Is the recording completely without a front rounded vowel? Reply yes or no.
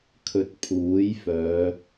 no